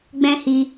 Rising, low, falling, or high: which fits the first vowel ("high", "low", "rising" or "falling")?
high